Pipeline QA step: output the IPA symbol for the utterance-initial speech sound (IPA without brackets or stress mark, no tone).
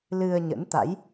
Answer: l